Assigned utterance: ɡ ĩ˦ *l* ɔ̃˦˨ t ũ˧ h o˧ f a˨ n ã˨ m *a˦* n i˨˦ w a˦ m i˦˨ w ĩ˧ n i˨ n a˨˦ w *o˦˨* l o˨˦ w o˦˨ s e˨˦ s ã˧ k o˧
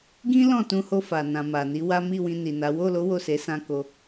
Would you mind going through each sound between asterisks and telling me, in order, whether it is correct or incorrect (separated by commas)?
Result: correct, incorrect, correct